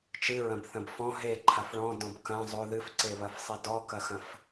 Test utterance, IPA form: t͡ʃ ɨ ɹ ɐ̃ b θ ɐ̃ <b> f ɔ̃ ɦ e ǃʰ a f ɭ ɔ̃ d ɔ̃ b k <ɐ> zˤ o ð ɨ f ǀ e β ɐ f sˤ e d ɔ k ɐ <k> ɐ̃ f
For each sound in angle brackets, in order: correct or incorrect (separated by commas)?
correct, incorrect, incorrect